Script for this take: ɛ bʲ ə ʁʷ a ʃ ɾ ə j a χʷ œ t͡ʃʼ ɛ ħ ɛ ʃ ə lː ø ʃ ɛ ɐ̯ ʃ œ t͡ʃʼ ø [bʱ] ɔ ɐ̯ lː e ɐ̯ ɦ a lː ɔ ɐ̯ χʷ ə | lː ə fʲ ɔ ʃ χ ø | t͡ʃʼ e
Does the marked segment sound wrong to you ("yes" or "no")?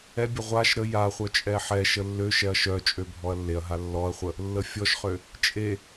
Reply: no